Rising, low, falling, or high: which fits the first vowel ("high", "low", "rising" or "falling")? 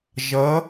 rising